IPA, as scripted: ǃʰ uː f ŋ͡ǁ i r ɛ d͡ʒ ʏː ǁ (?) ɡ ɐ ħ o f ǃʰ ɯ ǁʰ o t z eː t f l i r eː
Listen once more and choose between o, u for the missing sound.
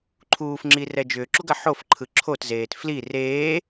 u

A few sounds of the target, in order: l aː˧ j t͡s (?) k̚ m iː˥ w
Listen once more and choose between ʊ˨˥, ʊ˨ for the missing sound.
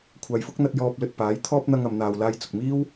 ʊ˨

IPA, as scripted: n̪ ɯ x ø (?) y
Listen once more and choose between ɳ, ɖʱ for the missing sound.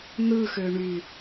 ɳ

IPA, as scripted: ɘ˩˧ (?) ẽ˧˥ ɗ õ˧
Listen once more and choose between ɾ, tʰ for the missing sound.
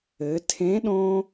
tʰ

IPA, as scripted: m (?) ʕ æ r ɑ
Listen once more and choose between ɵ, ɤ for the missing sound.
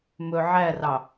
ɵ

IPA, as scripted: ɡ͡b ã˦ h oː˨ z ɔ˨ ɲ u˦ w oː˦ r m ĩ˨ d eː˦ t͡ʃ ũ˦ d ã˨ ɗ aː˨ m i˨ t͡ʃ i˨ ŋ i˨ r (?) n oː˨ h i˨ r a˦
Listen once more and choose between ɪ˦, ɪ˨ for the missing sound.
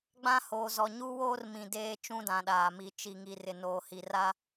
ɪ˨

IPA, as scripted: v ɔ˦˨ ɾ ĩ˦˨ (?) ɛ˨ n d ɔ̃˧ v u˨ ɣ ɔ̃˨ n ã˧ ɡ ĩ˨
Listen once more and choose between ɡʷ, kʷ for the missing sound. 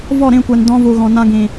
kʷ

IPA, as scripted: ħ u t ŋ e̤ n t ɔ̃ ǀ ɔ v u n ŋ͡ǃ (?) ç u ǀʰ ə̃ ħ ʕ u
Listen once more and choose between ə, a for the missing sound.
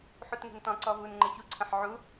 ə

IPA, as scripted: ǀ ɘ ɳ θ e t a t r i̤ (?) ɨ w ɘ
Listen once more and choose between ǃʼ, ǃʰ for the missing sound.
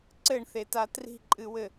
ǃʼ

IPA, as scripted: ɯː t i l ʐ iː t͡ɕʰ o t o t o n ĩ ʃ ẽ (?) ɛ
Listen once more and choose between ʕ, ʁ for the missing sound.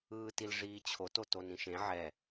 ʕ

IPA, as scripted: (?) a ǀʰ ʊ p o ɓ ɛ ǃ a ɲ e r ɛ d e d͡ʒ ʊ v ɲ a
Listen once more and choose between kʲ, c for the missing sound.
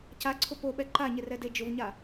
c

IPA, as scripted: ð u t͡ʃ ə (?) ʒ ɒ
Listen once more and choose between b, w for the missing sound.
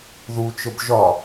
b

